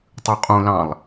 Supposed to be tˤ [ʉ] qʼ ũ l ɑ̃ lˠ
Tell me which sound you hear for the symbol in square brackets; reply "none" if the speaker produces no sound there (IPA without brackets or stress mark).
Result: ʉ